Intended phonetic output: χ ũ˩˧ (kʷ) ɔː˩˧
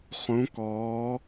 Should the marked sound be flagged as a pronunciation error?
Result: yes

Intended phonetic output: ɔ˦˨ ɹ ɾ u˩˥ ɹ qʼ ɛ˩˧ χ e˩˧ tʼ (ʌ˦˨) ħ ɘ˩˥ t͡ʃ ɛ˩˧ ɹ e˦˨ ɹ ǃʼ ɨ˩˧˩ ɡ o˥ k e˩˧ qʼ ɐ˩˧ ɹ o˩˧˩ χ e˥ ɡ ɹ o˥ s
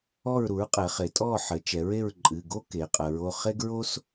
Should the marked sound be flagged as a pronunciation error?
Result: yes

